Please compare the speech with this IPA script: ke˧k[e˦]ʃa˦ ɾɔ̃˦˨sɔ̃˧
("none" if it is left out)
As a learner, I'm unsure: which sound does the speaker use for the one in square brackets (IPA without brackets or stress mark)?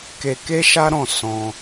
e˦